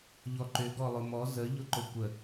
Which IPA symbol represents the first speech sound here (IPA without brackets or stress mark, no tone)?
ʎ